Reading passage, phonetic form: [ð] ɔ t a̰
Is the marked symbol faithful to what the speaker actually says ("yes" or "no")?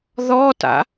yes